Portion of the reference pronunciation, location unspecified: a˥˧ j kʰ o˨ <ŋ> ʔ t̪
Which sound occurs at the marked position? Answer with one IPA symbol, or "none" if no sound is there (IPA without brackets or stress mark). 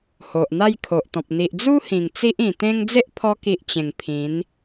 none